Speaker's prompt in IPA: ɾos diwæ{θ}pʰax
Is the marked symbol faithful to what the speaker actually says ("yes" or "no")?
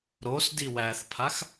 yes